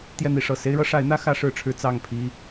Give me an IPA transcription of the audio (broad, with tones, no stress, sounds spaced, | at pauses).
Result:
t̪ j ɛ˥˨ n̪ i˨˦ ʂ ɤ˨˩ s e˦ ɪ̯ ɻ ɤ˦ ʂ a˨˦ ɪ̯ n̪ ä˦ x ä˦ ʂ ɻ̩˥˨ ʈ͡ʂʰ ɻ̩˦ t͡s ɑ˥˨ ŋ pʰ i˦